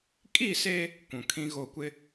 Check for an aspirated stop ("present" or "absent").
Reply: present